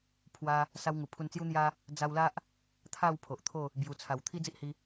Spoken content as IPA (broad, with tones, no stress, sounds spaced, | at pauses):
pʰ w a˧ | s a˧ w ŋ u˨˩ pʰ u˧ n t͡s j u˦ n̪ j a˦ | d͡z a˧ w l a˦ ʔ | t̪ʰ a˥˧ w pʰ o˨ ʔ t̪ʰ o˥˧ | b j u˨˩ t͡sʰ a˨˩ w t̪ʰ i˦ d͡z i˦ ʔ h i˧